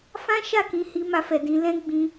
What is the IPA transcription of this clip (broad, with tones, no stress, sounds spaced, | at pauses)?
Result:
f ã˦ ʃ a˦˨ k ĩ˧ h i˧ m a˧ f ɛ˨ d ĩ˧ l ɛ̃˦ ɡ͡b ĩ˧